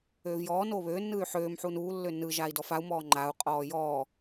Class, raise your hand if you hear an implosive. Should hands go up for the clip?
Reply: no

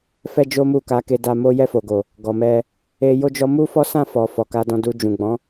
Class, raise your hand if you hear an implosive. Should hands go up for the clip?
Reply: no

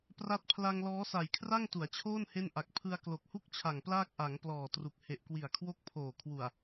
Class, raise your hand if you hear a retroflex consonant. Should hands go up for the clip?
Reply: no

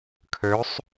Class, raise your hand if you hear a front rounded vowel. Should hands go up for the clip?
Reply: yes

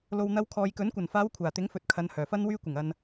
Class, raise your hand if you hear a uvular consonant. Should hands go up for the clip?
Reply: no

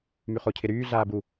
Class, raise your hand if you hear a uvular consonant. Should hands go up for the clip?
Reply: yes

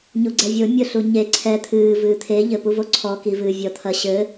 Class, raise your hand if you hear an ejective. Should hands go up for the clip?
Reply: no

